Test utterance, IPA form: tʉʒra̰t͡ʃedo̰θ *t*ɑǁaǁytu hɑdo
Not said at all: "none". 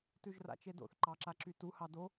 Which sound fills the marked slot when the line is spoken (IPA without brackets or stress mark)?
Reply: ǃ